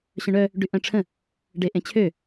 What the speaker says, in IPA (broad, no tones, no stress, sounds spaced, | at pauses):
ɕ œ̃ ɳ œ | ɖ y ʔ œ̃ ʈ͡ʂʰ ə̃ | ɖ e ʔ ẽ t͡ɕʰ ø